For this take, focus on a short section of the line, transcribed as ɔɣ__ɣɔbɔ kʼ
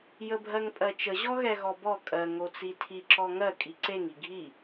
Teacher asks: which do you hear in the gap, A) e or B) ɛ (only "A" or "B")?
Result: B